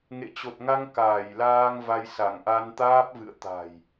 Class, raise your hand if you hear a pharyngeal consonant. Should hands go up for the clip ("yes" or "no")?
no